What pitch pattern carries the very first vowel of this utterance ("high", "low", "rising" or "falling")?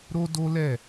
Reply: high